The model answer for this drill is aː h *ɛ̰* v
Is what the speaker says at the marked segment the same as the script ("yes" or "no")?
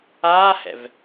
yes